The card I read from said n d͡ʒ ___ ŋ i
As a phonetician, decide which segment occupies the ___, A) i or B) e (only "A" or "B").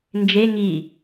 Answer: B